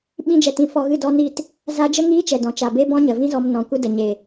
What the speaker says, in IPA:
ɓĩ˧d͡ʒɛ˨tĩ˨˦ fɔ˧ɣɨ˦˨dɔ˦ni˦˨t | za˦ d͡ʒə˦ŋiː˦t͡ʃɛ˨ dɔ̃˨t͡ʃa˨be˦ bɔ̃˦ɲə˨vĩ˦zɔ˧m nɔ̃˨ kʷɨ˧də˨ɲe˨

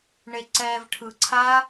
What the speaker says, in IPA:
ɳeǀɛːvʈʰɯǀʰaː

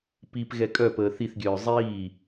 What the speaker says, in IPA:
pip ɣɛkʼœpəː θiθɡʲœː zˤiː

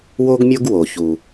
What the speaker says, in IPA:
wo˦ɡmʲo˦ɡwo˨ çu˦

